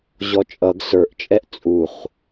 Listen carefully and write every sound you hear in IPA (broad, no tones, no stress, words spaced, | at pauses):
ʑɔt͡ʃʼʌɡ sə˞ʔt͡ʃʼɛʔ t͡sʼuχ